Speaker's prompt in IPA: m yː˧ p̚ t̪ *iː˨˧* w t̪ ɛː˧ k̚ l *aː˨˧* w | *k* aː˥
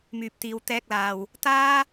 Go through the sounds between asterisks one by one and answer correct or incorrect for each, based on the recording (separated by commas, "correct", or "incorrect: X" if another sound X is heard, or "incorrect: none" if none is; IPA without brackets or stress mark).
incorrect: iː˧, incorrect: aː˨, incorrect: t̪